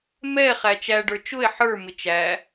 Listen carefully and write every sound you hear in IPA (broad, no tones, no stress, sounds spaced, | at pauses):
m ɛ χ æ t͡ʃ æ ɖ ə˞ t͡ʃ ʊ e̯ ħ ə˞ m ɪ t͡ʃ æ